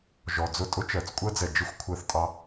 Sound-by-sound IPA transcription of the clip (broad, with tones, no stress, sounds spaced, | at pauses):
ʒ ɔ˨ d͡z ʊ˦˨ tʼ ʊ˦ t͡ʃ ɜ˨ t͡s kʷʼ ɜ˦ d͡z ɛ˨ d͡ʒ ɪ˦ xʷ kʷʰ ɜ˧ θ tʼ ɑ˧